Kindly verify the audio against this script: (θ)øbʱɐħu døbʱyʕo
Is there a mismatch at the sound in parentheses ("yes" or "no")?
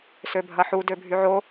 yes